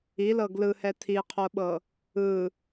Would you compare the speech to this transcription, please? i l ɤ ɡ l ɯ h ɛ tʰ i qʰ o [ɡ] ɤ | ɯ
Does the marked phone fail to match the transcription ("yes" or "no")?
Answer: yes